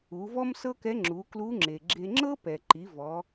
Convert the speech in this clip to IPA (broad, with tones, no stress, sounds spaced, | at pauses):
u˩˧ v ɔ˥ m s ɤ˥ k ɛ˧˥ ŋ͡ǁ u˩˧ k l u˧˥ ŋ͡ǁ e˩ ɡ͡ǁ e˧ ŋ͡ǁ ɤ˥ p ɛ˩ ǃ i˩˧ v ɔ˩˧